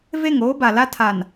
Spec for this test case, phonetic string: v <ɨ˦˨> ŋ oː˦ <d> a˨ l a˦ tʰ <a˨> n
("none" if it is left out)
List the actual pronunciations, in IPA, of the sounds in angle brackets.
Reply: e˦˨, b, a˨

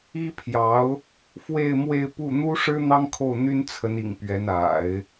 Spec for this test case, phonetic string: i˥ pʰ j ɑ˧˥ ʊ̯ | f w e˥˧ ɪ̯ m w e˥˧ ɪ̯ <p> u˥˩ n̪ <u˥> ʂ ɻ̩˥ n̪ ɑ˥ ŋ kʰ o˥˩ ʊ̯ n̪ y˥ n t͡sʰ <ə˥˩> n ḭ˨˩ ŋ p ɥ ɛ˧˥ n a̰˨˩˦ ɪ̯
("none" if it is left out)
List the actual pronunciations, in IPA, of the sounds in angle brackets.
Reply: p, u˥, ə˧˥

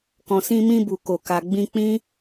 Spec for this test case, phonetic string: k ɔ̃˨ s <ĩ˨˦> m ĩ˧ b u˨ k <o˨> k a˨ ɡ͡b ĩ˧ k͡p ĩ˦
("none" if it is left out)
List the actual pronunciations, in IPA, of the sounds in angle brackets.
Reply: ĩ˧, o˨

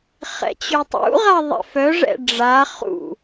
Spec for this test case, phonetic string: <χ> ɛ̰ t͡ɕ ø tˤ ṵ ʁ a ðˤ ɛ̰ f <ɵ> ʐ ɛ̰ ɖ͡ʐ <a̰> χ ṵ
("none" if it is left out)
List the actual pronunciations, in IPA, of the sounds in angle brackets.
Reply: χ, œ, a

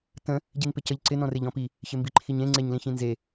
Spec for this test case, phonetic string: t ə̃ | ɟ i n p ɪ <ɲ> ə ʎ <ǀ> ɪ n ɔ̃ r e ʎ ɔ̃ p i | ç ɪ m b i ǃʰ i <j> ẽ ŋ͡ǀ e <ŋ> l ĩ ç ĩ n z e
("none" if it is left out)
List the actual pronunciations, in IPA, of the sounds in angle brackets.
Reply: c, ǀ, ɲ, ɲ

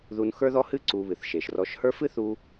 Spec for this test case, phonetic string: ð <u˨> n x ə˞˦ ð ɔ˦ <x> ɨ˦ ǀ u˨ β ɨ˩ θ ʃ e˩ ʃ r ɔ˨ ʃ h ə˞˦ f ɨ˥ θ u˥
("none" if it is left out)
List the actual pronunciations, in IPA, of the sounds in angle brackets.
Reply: u˨, h

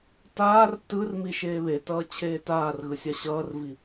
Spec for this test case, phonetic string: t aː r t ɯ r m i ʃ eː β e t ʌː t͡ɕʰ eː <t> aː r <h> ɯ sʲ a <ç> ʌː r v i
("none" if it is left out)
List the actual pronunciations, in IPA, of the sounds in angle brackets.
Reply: t, ɣ, ɕ

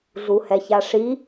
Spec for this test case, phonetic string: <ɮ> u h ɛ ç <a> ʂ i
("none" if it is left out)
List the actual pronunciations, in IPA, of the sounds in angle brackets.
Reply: ɮ, a

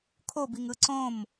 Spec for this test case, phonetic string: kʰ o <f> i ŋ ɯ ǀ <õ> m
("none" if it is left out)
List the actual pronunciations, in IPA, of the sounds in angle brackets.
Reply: b, õ

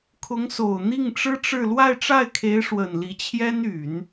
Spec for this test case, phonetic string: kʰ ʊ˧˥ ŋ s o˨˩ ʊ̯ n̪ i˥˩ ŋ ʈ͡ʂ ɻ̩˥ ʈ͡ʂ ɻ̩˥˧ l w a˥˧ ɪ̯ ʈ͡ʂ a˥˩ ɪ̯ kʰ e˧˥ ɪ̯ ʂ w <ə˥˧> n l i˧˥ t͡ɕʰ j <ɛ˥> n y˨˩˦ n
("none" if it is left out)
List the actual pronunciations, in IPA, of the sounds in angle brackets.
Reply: ə˨˩, ɛ˥

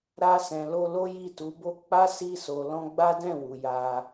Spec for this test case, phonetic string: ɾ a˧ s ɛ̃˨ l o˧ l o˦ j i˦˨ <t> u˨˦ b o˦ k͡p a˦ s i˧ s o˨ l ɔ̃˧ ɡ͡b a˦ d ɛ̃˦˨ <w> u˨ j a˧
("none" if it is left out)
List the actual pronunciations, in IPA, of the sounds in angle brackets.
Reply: t, w

